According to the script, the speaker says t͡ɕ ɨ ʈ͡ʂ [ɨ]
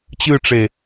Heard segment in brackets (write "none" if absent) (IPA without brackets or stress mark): e